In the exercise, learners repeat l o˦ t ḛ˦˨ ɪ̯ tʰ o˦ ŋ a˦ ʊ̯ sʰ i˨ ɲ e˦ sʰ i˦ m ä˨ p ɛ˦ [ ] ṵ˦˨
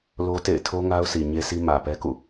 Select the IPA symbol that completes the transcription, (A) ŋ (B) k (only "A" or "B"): B